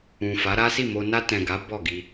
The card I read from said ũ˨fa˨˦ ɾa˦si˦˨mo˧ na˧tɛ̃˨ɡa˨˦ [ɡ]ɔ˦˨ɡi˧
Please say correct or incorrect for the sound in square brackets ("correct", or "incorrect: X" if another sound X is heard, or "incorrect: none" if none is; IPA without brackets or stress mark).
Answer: incorrect: b